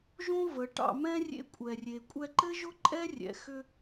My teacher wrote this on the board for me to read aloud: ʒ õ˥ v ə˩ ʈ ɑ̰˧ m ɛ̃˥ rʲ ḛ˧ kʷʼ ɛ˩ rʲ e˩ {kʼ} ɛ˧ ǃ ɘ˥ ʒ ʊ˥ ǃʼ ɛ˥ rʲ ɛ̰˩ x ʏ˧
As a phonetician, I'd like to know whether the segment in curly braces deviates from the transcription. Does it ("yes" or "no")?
yes